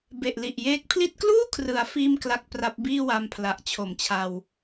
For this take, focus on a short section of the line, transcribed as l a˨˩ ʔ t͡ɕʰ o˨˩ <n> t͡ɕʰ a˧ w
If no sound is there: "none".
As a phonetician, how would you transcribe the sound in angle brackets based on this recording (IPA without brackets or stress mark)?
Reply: m